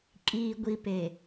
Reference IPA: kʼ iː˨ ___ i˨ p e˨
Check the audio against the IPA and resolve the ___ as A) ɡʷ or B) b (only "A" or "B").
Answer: A